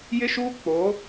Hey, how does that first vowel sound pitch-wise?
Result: high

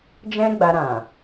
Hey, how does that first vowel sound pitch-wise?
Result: high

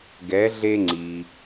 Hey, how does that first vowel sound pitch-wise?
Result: rising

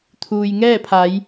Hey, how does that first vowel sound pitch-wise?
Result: low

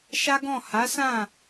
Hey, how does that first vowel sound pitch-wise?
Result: high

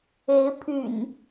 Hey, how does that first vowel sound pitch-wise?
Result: rising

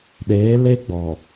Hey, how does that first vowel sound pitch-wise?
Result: rising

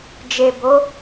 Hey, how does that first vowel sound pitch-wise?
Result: low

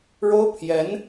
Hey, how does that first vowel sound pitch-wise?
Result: high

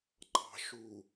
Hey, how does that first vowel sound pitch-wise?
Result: low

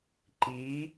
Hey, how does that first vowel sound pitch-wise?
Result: rising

